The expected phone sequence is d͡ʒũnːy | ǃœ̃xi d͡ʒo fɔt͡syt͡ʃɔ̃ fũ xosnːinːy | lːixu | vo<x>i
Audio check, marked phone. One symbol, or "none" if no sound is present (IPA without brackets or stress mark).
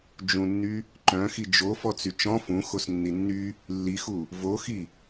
x